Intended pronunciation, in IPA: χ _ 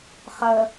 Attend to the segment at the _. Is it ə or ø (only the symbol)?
ə